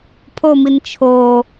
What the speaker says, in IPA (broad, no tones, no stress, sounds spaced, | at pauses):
pʰ o m i n t͡ʃʰ o